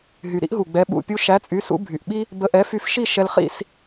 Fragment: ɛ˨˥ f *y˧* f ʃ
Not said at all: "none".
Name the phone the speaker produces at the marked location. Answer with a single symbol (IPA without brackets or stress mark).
y˧